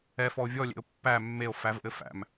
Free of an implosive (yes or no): yes